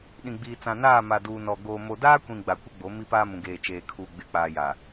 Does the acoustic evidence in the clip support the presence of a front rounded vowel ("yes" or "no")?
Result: no